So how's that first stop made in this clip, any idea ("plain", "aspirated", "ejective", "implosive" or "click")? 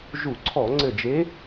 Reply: click